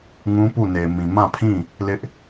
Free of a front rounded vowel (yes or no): yes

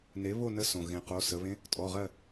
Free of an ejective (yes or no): no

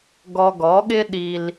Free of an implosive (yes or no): no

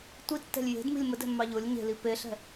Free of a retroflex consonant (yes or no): yes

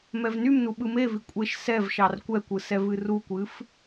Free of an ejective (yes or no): no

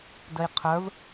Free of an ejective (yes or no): yes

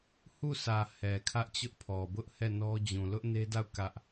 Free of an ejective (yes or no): yes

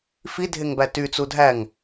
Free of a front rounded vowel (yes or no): no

